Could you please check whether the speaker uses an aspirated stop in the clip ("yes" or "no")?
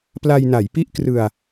no